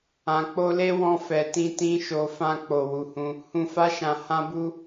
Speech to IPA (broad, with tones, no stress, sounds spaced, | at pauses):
ã˨ k͡p o˧ l e˦ w ɔ̃˧ f ɛ˨ t ĩ˧ t ĩ˦ ʃ o˧ f ã˦ k͡p o˧ w u˧ h ũ˦ | h ũ˧ f a˦ ʃ ã˧ h ã˦ b u˦